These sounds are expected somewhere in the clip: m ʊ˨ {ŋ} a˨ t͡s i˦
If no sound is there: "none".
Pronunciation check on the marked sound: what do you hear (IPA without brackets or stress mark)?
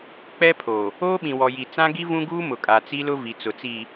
kʼ